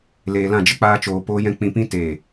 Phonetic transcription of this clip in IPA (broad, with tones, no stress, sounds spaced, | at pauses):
l eː˨ l ã˦˨ d͡ʒ ə˦ k͡p aː˧ t͡ʃ oː˨ p oː˦ j ɛ̃˦ k͡p ĩ˧ p ĩ˦ t eː˦˨